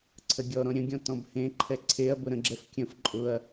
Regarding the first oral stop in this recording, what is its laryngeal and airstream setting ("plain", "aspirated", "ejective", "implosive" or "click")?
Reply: click